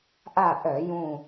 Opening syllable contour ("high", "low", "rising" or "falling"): falling